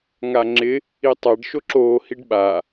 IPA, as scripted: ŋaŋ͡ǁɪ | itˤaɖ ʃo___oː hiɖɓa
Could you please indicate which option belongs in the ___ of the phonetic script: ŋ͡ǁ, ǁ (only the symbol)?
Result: ǁ